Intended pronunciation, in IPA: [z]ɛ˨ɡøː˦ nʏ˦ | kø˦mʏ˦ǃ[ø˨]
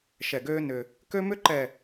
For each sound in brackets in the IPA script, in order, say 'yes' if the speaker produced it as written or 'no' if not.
no, no

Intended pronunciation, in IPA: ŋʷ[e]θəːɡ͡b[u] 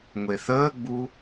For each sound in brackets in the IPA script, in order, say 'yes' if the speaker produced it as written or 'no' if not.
yes, yes

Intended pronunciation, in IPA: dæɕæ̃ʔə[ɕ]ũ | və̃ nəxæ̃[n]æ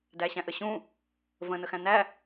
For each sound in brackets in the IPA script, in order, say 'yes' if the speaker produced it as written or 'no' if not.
yes, yes

